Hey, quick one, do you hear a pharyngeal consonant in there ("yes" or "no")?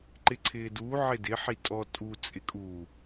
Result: yes